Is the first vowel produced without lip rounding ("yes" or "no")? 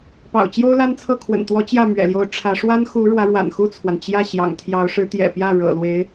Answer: yes